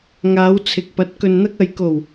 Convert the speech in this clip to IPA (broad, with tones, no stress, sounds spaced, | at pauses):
ŋ aː˨˧ w t͡sʰ ɪ˨ k̚ p ɐ˨˥ t̚ k ɵ˨ n n̪ ɐ˧ k̚ ɐ˨ j k o˨˩ w